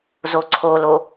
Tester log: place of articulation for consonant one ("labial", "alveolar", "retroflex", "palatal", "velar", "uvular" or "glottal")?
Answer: alveolar